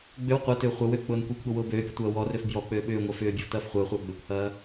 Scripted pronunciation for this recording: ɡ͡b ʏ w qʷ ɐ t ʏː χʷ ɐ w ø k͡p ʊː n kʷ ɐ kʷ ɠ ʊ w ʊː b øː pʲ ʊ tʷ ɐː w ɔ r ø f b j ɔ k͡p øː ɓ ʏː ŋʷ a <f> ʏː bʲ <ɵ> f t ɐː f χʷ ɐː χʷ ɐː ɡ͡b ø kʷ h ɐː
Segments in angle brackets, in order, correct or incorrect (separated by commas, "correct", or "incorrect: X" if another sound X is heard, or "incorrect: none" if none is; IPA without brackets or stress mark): correct, incorrect: ø